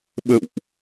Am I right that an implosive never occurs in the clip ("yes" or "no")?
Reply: no